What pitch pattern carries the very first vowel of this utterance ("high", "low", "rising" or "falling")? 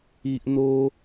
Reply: low